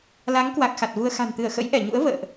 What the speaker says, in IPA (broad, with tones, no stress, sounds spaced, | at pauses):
l a˨˦ ŋ k w a˨˩ k̚ x a˨˩ t̚ v u˧ ə̯ x a̤˨˩ n t̪ ɨ˧˩ ə̯ x ə̰˧˥ j ʔ ɛ˧˩ ɲ ṵ˧˥ ə̯ v ə̰ː˧˨ ʔ